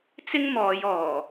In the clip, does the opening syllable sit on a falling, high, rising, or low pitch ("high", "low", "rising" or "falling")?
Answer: high